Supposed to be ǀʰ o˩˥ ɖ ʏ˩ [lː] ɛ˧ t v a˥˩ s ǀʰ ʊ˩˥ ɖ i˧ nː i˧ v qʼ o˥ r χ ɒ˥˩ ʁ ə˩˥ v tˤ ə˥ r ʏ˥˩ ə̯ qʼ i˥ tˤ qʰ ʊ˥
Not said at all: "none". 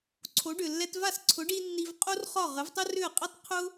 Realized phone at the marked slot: lː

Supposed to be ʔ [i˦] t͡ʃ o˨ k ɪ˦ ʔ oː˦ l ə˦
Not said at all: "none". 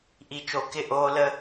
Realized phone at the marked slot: i˨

